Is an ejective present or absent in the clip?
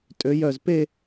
present